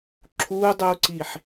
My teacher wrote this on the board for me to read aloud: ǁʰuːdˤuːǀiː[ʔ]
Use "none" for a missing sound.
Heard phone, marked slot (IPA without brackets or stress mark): ħ